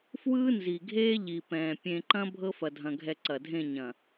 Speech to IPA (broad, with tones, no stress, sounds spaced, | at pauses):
f w ɯː˦ n z i˨ ɡʱ eː˦ ʎ i˨ p ɛ̃ː˨ pʲ ẽ˨ ǃ ɐ̃˦ bʱ ɤ˦ f ɐ˨ dʱ ɐ̃˨ ɡʱ ɛ˨ ǀ ɐ˨ dʱ ẽ˦˨ ɲ ɐ̃˨